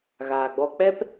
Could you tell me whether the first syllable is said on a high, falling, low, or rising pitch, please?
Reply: low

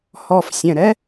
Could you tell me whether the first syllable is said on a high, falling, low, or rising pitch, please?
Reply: low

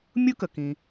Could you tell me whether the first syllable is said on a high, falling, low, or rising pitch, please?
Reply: high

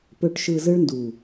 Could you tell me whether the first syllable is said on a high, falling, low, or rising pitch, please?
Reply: low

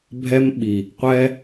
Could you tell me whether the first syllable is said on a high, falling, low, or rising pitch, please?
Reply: high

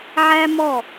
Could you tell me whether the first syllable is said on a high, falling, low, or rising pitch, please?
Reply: high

